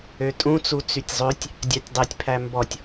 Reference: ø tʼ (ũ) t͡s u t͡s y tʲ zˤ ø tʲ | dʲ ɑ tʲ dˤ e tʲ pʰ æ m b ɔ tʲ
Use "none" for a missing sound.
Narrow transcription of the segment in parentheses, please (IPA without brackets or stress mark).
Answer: ũ